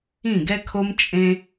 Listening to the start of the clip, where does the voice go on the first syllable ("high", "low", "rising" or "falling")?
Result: falling